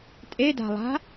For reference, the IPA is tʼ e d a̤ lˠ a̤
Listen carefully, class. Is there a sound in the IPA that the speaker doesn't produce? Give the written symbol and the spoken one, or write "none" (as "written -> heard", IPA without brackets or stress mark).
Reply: none